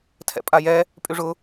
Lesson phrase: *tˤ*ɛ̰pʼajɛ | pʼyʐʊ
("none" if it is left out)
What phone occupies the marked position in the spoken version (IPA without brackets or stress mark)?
tʰ